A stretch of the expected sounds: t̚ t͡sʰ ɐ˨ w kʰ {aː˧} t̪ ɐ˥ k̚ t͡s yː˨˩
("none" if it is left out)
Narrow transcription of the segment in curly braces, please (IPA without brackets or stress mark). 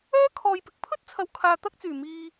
aː˨